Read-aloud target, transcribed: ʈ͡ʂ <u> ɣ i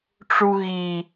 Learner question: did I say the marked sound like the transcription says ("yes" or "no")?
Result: yes